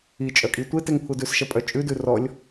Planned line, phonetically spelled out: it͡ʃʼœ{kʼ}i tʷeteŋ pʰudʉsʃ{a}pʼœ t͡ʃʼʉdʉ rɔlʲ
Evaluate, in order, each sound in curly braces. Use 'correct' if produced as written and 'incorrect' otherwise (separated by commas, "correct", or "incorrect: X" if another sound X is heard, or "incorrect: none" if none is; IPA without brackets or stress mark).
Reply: correct, incorrect: ɐ